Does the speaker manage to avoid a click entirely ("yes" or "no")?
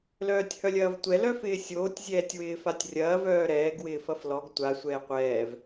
yes